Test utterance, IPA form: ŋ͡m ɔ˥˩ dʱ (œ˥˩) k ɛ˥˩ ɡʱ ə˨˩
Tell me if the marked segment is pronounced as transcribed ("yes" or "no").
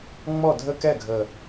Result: no